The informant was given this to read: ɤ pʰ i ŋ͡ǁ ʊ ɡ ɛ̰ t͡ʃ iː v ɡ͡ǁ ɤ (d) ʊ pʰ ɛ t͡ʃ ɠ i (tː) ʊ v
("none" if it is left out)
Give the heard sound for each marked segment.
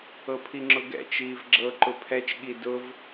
ǃ, d

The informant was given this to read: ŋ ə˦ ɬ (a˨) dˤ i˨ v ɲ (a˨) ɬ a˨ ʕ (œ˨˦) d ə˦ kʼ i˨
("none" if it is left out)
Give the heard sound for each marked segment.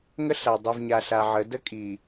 a˨, a˨, ə˨˦

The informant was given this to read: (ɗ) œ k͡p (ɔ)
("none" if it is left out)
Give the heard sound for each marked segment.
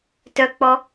t, ɔ

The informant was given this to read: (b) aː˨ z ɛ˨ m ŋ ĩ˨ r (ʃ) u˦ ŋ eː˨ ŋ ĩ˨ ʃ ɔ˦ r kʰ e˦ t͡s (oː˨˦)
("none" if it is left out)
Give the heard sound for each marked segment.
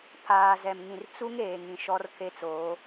pʰ, t͡s, oː˨˦

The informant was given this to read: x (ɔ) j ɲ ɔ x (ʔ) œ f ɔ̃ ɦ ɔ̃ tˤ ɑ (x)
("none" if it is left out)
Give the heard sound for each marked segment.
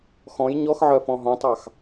ɔ̃, ʕ, x

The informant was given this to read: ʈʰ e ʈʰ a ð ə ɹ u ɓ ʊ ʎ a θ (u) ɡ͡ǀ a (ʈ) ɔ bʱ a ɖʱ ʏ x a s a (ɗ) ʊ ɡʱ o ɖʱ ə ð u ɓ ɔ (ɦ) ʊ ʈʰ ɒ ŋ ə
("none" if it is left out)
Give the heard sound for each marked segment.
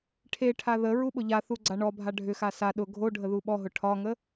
u, ɳ, ɗ, ɦ

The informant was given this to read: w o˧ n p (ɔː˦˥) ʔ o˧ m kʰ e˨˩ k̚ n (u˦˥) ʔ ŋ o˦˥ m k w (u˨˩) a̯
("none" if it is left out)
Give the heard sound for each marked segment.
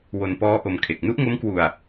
ɔː˦˥, u˦˥, u˧

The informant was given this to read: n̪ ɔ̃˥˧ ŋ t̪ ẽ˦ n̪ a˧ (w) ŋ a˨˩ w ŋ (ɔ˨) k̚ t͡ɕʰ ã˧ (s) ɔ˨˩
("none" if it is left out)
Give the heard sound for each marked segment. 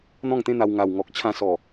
w, ɔ˨, s

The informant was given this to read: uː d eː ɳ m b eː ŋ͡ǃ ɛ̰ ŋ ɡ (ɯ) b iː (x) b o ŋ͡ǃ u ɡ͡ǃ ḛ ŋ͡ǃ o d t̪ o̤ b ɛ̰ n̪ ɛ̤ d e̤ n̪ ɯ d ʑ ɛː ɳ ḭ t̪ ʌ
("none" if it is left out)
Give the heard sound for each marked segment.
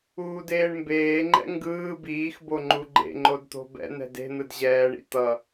ɯː, x

